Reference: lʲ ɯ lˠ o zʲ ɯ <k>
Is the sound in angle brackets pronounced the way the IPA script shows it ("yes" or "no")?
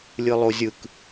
yes